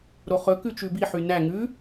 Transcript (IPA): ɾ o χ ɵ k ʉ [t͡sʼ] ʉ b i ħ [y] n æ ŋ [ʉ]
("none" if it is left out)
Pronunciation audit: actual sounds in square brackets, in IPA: t͡ʃ, y, ʉ

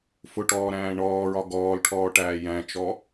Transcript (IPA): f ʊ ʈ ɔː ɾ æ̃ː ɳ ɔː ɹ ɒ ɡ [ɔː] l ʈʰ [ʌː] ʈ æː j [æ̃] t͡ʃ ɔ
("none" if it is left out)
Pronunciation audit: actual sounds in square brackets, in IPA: ɔː, ɔː, æ̃

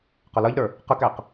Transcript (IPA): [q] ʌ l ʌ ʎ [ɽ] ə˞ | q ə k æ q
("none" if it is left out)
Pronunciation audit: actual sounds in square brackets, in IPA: q, ɾ

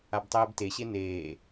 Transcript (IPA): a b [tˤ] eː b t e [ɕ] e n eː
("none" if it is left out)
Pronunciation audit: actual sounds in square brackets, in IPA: tˤ, ɕ

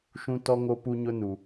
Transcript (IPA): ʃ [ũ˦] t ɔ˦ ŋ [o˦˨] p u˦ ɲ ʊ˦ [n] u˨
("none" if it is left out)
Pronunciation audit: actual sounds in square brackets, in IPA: ũ˦, o˦, n

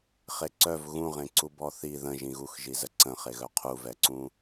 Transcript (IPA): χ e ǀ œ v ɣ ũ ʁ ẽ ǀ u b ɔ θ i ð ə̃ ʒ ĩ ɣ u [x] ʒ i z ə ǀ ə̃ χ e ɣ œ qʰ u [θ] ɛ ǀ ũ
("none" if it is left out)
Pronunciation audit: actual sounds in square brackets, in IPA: x, v

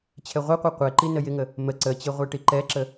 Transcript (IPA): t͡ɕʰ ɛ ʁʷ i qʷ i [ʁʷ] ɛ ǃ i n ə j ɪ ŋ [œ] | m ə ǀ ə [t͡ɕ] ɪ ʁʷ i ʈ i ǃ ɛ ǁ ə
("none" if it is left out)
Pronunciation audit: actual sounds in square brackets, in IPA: qʷ, ə, t͡ɕ

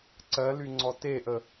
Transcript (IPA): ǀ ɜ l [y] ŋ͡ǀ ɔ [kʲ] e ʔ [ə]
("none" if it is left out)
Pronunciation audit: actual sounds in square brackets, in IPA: y, t, ə

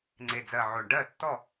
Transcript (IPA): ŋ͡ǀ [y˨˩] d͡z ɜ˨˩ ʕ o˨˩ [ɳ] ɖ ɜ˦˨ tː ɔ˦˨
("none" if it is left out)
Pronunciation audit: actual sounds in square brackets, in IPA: e˨˩, ɳ

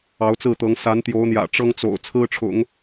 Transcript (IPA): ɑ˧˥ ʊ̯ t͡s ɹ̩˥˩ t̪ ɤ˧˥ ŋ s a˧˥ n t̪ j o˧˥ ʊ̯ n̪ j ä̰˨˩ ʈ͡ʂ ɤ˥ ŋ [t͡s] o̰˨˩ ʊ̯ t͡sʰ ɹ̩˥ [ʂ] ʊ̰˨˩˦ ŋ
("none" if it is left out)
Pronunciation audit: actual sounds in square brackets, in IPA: t͡s, ʈ͡ʂʰ

